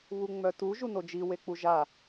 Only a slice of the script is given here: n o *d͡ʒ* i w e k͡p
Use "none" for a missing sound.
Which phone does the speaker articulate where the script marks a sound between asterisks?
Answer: d͡ʒ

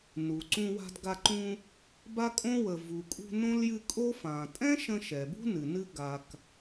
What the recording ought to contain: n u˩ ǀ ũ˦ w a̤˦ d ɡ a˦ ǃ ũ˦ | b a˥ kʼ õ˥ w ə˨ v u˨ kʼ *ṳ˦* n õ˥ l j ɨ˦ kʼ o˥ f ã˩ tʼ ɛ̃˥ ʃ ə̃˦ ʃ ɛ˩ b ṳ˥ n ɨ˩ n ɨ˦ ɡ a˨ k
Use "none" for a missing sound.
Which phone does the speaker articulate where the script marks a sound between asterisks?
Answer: ṳ˦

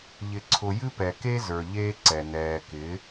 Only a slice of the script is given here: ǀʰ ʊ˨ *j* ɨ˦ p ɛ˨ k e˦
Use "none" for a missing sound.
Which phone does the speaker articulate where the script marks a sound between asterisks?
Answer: j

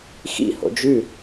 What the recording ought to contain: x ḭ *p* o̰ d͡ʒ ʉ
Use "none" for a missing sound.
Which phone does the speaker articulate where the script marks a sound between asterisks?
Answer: h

